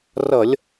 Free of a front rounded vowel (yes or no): yes